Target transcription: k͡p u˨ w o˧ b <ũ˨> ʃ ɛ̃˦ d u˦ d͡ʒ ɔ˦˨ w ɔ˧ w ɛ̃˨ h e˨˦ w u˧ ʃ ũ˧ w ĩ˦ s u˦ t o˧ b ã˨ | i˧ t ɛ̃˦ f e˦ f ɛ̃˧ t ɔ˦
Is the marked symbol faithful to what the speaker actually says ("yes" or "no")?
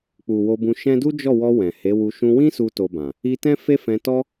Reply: no